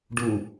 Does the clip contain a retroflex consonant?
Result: yes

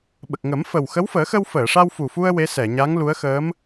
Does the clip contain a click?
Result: no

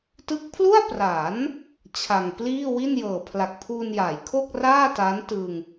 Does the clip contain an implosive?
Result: no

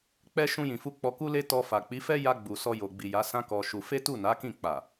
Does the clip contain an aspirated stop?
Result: no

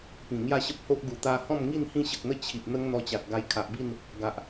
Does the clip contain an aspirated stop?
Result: yes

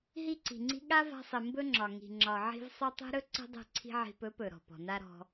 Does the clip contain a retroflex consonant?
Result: no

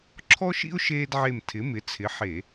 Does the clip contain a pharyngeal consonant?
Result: yes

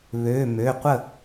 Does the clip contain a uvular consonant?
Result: yes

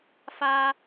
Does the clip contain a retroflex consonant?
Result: no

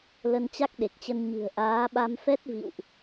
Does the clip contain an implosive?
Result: yes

